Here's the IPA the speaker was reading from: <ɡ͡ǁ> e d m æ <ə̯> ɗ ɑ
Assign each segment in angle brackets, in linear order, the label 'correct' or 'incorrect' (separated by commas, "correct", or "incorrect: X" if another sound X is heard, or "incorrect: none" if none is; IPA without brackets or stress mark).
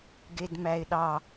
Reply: incorrect: ɡ, incorrect: ɪ̯